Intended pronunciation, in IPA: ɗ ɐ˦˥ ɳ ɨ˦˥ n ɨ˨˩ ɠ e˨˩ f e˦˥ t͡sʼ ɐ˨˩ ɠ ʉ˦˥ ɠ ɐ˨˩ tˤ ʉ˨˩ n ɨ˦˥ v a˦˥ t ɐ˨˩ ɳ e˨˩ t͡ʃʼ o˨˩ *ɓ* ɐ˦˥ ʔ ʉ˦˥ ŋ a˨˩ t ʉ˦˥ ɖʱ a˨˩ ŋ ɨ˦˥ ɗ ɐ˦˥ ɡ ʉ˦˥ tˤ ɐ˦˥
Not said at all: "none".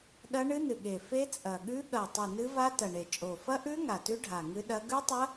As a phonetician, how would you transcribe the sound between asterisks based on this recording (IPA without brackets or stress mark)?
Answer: f